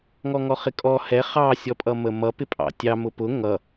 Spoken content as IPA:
ŋ ɔ ŋ ɔ χ ɪ kʼ ɔ h ɛ χ ɑ sʲ ɔ pʼ ʌ m ə m ʌ p ɪ pʼ ɑ̰ tʲ ɑ m ʊ p ʊ ŋ ʌ

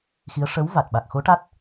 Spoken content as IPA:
x i˧˥ ə̯ ʂ ə˧˥ w v a˨˩ t̚ ɓ a˨˩ k̚ x o˧˥ ʈ a˦˥ t̚

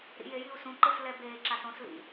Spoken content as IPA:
ɾ ḭ j e j i u̯ s ũ ǃ ɯ s l ɛ b eː ǁ a s õ s l ḭ

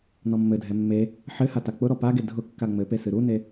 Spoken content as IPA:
n ɔ mː ɘ dʱ ɛ mː e | ħ ɘ h a t a k͡p ʊ ɾ ɔ p a ɡ e dʱ ʊ kː a ŋ͡m ɘ p e s ɨ ɾ u n e

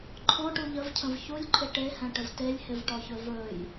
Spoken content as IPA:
ǃʰ ɔ̃ ʈ u ʎ ə v cʰ ə̃ v ç u lʲ ǃʰ ɪ ʈ e h ɛ̃ ʈ ə v t e lʲ h ɪ v ʈ ɔ ç ɵ v ɵ j

